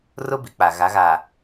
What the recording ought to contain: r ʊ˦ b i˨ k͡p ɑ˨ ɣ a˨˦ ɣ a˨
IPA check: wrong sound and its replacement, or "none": ɑ˨ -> a˨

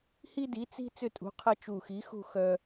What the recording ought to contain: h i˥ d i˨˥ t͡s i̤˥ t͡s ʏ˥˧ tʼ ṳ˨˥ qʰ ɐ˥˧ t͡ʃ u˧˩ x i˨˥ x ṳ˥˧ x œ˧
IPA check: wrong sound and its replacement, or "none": none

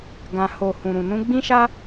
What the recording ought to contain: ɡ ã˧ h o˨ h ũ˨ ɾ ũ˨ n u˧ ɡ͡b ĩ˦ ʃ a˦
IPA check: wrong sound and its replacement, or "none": u˧ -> ũ˧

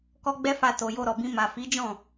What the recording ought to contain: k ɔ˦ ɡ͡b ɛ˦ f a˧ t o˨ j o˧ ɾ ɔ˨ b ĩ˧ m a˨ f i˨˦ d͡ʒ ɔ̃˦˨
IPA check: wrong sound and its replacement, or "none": none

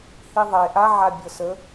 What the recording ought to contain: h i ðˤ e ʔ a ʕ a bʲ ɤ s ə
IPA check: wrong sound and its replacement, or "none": none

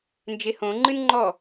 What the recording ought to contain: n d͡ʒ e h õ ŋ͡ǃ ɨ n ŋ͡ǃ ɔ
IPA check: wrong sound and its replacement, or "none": none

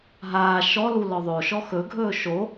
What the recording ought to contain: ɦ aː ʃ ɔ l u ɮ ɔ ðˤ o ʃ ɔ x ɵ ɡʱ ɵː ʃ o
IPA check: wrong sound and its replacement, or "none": ɮ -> l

